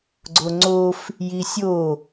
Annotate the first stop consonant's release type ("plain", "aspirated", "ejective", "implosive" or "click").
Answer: click